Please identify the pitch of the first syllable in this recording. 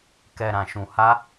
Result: low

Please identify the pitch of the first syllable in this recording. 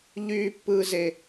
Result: low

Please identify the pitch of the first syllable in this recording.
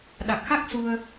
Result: low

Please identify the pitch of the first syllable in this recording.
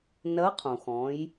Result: rising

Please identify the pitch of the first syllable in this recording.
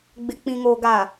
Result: low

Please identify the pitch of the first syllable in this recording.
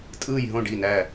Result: falling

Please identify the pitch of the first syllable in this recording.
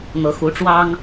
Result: rising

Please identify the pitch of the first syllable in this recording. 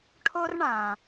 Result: high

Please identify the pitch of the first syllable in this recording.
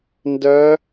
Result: rising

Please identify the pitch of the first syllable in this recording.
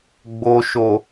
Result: low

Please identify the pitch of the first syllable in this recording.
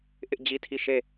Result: high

